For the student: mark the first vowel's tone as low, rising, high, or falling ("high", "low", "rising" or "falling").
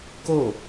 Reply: falling